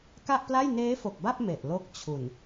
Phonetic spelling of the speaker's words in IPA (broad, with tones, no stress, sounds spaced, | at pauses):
k a˥˩ ʔ p l a˥˩ j n eː˦˥ f o˨˩ k̚ b a˥˩ p̚ m e˨˩ ʔ l o˦˥ k̚ t͡ɕʰ u˨˩ n